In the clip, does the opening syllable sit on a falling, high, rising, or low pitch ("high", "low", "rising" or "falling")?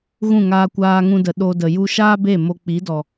falling